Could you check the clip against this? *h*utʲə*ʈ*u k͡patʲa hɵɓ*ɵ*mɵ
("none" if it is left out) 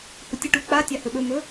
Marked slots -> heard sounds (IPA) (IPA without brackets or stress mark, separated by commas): h, ʈ, ɵ